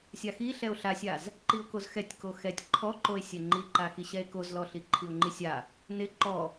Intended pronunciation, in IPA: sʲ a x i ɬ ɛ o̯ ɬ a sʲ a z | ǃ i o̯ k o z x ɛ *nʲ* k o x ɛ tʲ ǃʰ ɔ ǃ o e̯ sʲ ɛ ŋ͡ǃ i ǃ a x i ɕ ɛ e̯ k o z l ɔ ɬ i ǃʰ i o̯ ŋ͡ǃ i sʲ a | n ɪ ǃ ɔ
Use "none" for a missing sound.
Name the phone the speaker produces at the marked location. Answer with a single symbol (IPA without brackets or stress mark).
tʲ